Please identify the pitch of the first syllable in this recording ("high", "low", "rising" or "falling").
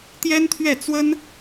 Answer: high